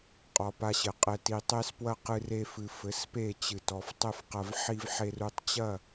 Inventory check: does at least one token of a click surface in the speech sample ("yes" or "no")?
no